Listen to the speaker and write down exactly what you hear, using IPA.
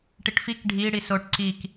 ʈ i ʈ f i k ɖʱ i ɽ i s o ʈ ǀ i k

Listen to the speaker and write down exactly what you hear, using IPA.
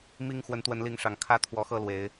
m i˥˨ ŋ x w ə˨˦ n t̪ w ə˨˦ n l i˨˦ ŋ ʂ ɑ˨˩ ŋ kʰ ä˦ t̪ʰ w ɔ˨˦ x ɤ˥˨ l w e˨˦ ɪ̯

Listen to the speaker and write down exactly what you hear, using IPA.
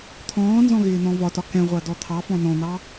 t̪ʰ ɔ̃ː n z ɔ̃ ɣ ɪː n̪ ɔ̃ v ɒ t ɒ k ɛ̃ ʁʷ ɑ d ɔ t̪ʰ ɑ f ɔ̃ n ɔ̃ n̪ ɑ

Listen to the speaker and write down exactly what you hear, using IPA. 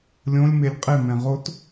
lʲ õ lʲ m e lʲ qʼ e m ɛ̃ ʁ o t

